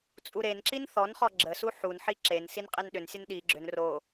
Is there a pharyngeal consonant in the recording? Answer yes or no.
yes